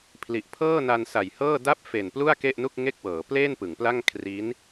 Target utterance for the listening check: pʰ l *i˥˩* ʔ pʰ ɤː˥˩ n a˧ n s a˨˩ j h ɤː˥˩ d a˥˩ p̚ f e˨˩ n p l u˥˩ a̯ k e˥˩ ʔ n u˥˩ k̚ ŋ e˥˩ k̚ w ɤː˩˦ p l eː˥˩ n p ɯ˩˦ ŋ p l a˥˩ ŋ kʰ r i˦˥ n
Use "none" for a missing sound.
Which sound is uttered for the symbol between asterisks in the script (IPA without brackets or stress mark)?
i˨˩